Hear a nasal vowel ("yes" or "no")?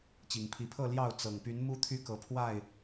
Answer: no